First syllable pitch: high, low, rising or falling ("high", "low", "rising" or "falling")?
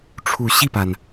low